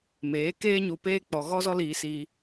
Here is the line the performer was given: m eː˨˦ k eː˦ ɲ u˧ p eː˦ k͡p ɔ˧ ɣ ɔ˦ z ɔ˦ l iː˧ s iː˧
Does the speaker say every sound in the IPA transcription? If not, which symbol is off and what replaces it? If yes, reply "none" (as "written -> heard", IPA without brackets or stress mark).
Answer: none